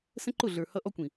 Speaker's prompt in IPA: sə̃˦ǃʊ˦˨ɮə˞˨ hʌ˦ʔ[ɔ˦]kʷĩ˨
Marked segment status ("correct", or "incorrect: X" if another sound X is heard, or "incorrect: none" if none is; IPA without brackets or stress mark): correct